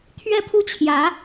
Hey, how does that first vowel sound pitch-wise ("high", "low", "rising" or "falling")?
falling